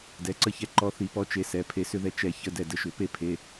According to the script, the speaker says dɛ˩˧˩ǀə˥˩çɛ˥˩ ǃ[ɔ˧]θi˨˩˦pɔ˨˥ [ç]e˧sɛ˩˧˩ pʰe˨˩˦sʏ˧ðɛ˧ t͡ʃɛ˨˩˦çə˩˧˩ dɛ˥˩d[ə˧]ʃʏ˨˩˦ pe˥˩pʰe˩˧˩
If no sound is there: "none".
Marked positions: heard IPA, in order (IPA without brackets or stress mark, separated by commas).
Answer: ɔ˧, t͡ʃ, ə˧